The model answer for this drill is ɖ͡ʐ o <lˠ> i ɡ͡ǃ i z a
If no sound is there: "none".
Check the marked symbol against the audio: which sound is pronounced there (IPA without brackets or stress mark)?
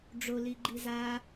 l